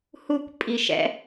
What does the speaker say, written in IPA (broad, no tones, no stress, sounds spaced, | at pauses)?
h u kʷ pʼ i ʃ ɛ̰